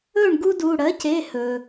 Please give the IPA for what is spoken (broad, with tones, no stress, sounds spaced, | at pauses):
ɵ˥˩ ɳ ɡ u˦ d u˩˧˩ ɽ ɜ˩˥ c e˩˧˩ h ɵ˩